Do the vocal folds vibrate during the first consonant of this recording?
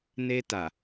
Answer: yes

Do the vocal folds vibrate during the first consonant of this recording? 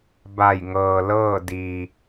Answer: yes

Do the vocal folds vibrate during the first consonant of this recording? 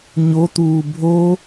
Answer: yes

